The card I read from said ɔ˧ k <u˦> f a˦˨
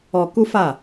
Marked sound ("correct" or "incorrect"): correct